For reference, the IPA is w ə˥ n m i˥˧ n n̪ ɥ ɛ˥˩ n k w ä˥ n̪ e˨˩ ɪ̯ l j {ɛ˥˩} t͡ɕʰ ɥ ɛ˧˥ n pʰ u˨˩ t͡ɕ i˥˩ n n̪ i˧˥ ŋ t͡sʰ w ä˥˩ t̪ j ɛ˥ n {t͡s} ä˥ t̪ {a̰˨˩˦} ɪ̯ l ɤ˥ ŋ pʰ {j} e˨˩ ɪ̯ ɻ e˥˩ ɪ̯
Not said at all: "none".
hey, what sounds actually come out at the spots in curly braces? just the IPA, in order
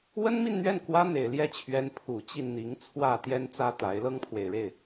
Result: ɛ˥˩, t͡s, a˧˥, w

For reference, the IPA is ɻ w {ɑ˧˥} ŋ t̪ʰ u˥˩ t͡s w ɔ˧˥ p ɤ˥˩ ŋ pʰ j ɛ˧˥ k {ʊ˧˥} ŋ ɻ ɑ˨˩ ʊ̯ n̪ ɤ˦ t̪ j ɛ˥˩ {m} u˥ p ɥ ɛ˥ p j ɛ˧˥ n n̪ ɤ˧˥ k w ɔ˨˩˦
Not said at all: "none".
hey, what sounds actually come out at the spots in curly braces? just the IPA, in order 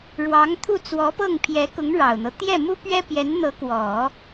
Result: ɑ˧˥, ʊ˧˥, m

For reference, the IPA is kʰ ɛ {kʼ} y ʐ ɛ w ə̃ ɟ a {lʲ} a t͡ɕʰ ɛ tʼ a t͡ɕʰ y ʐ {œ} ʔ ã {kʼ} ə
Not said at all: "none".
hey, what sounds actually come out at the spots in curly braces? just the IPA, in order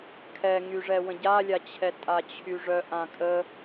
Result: ŋ, lʲ, œ, kʼ

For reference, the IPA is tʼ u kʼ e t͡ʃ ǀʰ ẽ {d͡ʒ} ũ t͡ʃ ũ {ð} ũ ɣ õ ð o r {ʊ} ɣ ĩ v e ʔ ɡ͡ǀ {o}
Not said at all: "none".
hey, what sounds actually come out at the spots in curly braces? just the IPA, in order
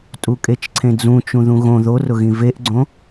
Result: d͡z, ð, ʊ, õ

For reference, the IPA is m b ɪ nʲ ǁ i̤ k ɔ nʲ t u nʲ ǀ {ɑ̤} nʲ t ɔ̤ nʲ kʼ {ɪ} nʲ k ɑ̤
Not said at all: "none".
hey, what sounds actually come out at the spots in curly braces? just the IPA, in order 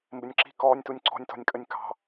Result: ɔ̤, ə

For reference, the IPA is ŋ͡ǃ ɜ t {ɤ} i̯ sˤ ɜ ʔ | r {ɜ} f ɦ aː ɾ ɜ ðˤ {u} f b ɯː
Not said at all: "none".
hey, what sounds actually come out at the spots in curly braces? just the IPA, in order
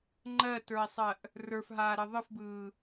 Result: ə˞, ə˞, ɯ

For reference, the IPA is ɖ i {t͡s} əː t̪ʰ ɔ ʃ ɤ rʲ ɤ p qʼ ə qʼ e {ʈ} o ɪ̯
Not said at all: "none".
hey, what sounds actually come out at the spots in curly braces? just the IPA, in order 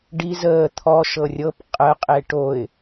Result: z, ʈ

